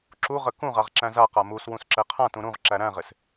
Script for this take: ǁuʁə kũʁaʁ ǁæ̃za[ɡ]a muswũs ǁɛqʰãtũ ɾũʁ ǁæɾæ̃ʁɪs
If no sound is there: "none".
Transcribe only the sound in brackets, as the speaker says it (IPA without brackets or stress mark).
q